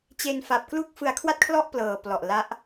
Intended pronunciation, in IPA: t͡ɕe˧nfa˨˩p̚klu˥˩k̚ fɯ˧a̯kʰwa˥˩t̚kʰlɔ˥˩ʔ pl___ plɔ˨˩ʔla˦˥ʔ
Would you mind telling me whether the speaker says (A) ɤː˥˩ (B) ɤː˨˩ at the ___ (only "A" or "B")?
B